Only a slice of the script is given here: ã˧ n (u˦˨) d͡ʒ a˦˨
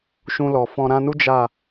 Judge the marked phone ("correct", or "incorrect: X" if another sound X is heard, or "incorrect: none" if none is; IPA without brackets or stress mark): incorrect: u˦